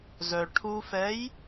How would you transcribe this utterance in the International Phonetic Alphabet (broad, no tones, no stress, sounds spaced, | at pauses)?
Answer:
z œ ʈʰ u f ɛ j